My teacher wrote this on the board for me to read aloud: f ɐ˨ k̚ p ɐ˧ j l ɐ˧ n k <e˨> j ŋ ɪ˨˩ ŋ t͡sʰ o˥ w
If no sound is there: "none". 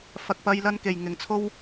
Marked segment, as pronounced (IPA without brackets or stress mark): e˨˩